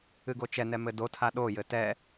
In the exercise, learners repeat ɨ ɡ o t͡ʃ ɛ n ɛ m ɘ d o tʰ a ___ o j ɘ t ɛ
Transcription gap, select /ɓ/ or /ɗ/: ɗ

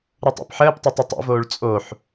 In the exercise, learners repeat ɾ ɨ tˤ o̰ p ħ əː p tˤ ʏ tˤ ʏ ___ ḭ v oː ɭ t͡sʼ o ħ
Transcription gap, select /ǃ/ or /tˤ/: tˤ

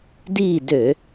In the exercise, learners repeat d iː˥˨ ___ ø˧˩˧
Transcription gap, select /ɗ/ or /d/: d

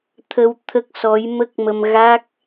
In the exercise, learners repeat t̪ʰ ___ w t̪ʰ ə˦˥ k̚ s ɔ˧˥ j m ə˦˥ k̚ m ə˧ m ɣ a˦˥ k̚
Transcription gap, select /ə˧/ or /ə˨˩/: ə˧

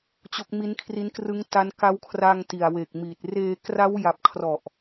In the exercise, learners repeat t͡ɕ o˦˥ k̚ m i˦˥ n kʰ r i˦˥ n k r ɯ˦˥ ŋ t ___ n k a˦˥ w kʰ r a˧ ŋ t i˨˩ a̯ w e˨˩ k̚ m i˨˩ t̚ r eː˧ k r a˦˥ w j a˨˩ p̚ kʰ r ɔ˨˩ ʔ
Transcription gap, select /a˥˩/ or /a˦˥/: a˦˥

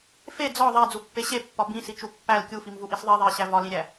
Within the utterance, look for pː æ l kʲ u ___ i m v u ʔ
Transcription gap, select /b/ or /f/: f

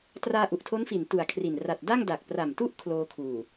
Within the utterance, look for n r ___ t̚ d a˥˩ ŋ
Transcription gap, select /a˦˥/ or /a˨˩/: a˨˩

